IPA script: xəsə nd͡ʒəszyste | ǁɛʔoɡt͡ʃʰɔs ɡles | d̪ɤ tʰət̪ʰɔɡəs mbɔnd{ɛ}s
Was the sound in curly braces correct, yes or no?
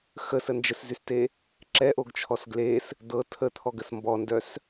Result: no